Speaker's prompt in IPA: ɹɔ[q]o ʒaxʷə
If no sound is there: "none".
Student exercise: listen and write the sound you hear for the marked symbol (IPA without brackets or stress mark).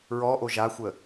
ʔ